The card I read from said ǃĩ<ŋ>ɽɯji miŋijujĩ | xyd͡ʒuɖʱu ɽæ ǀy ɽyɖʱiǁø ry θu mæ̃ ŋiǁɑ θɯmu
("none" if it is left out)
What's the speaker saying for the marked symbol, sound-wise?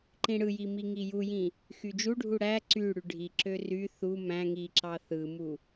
none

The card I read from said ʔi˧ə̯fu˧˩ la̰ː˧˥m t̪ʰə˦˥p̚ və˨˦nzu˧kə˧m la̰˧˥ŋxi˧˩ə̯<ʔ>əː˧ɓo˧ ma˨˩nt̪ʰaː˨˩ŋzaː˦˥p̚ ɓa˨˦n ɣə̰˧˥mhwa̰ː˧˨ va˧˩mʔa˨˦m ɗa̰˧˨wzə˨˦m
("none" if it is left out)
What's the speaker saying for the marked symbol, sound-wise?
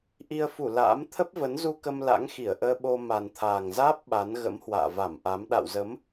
ʔ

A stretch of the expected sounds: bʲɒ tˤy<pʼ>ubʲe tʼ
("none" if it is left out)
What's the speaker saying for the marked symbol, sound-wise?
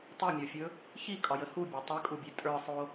kʼ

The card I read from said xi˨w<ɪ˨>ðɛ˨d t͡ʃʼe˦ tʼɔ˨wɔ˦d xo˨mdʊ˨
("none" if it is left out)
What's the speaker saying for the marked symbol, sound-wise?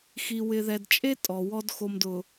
ɪ˨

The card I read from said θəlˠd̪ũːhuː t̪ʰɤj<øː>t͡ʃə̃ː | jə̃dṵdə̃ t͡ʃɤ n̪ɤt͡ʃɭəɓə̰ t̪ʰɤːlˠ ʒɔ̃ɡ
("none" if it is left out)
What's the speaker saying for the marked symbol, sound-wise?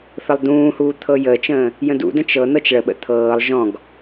əː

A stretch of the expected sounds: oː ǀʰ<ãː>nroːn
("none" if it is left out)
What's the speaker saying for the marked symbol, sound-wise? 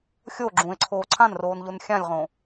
ã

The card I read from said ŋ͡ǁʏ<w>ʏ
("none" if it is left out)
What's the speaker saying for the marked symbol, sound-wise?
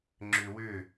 w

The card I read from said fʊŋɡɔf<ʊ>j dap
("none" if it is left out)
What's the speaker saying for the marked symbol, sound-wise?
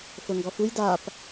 u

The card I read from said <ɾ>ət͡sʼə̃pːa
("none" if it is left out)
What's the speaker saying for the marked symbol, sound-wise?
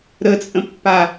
ɾ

